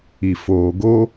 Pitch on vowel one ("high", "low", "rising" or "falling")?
low